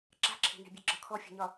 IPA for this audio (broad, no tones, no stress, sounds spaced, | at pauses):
ǁ a̤ ǁʰ e̤ n e̤ bʲ e ɡ͡ǁ ɒ kʰ ɔ fʲ e̤ ɲ ɒ